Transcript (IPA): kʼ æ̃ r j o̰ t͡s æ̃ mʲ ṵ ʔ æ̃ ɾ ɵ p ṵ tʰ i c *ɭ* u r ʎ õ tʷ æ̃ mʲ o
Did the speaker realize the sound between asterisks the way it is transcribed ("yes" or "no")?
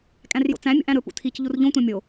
no